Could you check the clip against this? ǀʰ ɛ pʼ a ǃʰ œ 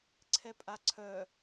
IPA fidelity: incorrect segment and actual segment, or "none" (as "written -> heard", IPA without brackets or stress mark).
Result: ǃʰ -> ǀʰ